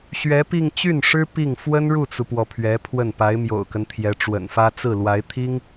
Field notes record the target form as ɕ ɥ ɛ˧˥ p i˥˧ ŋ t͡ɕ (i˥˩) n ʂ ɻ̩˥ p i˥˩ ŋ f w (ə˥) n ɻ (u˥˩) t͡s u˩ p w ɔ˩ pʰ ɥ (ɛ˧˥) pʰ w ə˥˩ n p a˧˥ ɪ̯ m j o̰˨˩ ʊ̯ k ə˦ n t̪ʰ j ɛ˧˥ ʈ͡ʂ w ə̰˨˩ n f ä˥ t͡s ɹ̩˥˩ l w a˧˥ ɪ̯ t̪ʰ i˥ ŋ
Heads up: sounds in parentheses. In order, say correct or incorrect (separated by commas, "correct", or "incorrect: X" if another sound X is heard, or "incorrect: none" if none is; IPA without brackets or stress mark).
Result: incorrect: y˥˩, correct, correct, correct